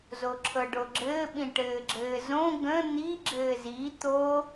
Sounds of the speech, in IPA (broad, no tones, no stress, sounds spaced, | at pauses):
z o ǁʰ ɤ ɖ o ɡ͡ǁ ɘː ɓ ĩ ʈ ɘː ɡ͡ǁ ɘː z õ ɡ ə̃ n̪ i ɡ͡ǁ ɘː z i t̪ o